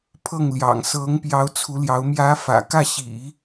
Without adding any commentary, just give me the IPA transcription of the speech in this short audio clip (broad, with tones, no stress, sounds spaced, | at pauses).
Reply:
pʰ ɤ˥˩ ŋ l j ɑ̰˨˩ ŋ s ɤ˧˥ ŋ p j ɑ˧˥ ʊ̯ t͡sʰ u˧˥ l j ɑ˧˥ ʊ̯ m j ä˧˥ f ä̰˨˩ k ä˥˩ ɕ ḭ˨˩˦